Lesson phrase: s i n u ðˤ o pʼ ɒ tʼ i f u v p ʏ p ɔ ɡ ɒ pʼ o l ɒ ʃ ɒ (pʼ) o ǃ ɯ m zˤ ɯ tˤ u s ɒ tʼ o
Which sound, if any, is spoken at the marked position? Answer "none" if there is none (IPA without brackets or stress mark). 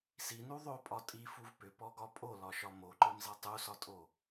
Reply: m